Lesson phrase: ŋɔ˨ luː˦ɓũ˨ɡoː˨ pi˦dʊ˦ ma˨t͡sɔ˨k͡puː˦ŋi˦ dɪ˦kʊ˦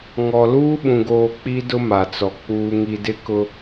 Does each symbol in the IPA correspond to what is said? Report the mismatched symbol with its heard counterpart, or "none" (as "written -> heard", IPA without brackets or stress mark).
p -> k͡p